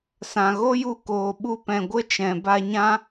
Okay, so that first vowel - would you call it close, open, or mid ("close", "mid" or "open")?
open